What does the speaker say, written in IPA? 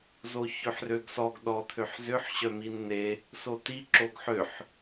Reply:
z o ç ø ħ r ø ɡ s ɔ ɡ ɗ ɔ t̪ʰ ø ħ z ʏ ħ ɕ œ m i n n̪ e | s o t i ǁ o ɡ ħ ø ħ

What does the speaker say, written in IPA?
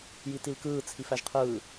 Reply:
j i t i l k ɯː t͡sʰ i f æ ʒ qʰ ɯː

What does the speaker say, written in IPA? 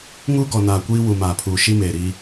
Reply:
ŋ uː˦ ɡ ɔ˨ n aː˨ kʷ iː˦ w u˨ m aː˨ pʰ uː˨ ʃ i˦ m eː˨ ɾ i˦

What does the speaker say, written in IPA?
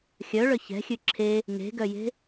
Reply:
xʲ œ ɭ œ ç ɛ̤ xʲ ʉ ǁʰ e | ŋ e̤ ɡ œ j e̤

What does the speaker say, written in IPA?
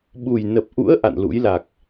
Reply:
ɓ u˨˩ j n ə˨˩ p̚ ʔ ṵ˧˥ ə̯ ʔ a̰˧˨ n l ṵ˧˥ j l a˨˩ k̚

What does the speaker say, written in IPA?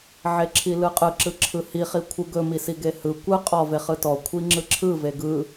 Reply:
ʕ e ǁʰ i l ɯ qʼ ɯ ǁ ɯ ǁʰ ɯ h i χ i kʷʰ ɯ ɡ ɵ m i s i ɡ e h ɯ kʷ ɯ qʼ ɔ v e χ ɯ t ɔ kʷʰ i ŋ͡ǁ ɯ ǁʰ ɯ v e ɡ ɯ

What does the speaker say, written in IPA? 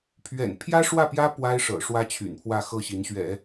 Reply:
pʰ ɥ ɛ̰˨˩ n pʰ j ä˥ ʂ w ä˥˩ p j ä˥ p w a˥ ɪ̯ ʂ ɤ̰˨˩ ʂ w ä˥ t͡ɕʰ y̰˨˩ n pʰ w ä˥˧ x ɤ˥˩ ɕ i˧˥ n ɕ ɥ ɛ̰˨˩˦

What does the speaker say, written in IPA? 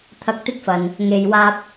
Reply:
t̪ʰ ɐ˧ k̚ t̪ ɪ˥ k̚ f ɐ˨ n | ŋ e˨ j w aː˧ p̚

